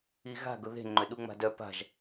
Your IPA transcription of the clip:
i ɣ a̤ ɡ ʊ ð e̤ ŋ͡ǃ ʏ ɗ u ŋ͡m a̤ d œ p a̤ ʒ

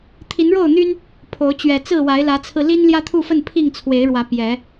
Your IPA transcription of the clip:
t̪ʰ i˨˦ n ɻ o˥˨ ʊ̯ n̪ y˦ n | pʰ o˨˦ ʊ̯ t͡ɕ ɥ ɛ˨˩ t͡s ɹ̩˥˨ w a˨˦ ɪ̯ l ä˨˦ t͡sʰ ɹ̩˧ l i˦ n l j ä˦ t̪ʰ u˥˨ f ə˥˨ n pʰ i˥˨ ŋ t͡sʰ w e˨˦ ɪ̯ ɻ w ä˨˦ p j ɛ˨˦

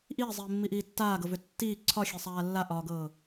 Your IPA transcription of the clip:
ʔ iː zˤ iː mː i ʔ iː tː aː ɡ ɤ v ʏ tː iː ǀʰ ɒ xʲ e sˤ aː lː a ʔ ɒː ɡ ɤː

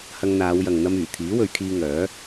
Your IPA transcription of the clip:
h ɐ˧ ŋ n̪ aː˨˧ w j ɐ˨ ŋ n̪ ɐ˧ m yː˨˩ t̪ʰ iː˨˥ w ɵ˨˧ ɥ kʰ iː˧ ŋ œː˨˥

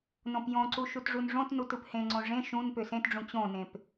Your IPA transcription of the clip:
n õ p j õ ǀ u ʃ u t ʐ u n ʐ õ t n u t ɯ p h ẽ ŋ͡ǀ õ ʐ ẽ ʃ ũ n p ø s ẽ t ɖ͡ʐ ũ t͡ɕ õ n ẽ p

